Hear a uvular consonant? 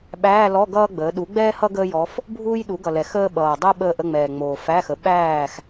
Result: no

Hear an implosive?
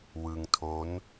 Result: no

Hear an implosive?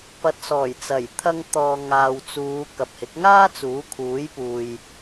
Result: no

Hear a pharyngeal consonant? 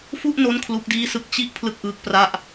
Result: no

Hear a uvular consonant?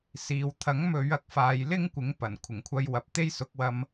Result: no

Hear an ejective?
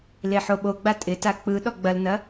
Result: yes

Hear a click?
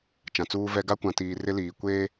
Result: no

